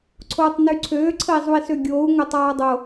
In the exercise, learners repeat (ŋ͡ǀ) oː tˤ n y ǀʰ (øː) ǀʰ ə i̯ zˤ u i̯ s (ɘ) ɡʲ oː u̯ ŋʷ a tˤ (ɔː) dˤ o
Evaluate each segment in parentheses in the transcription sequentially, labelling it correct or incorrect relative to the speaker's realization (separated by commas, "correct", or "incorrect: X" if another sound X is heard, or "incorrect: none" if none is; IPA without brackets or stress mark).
incorrect: ǀʰ, correct, incorrect: ø, correct